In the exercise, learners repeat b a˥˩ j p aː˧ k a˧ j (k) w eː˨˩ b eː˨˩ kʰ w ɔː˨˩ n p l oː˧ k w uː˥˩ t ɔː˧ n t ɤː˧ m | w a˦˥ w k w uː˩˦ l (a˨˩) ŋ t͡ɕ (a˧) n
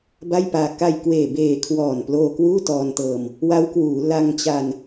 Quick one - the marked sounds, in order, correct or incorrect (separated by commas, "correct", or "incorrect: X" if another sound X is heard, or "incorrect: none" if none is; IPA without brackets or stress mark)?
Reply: correct, incorrect: a˧, correct